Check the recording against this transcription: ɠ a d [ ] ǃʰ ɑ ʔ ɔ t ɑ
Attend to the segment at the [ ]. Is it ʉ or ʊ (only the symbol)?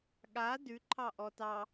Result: ʉ